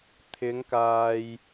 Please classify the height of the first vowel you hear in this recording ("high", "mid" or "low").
high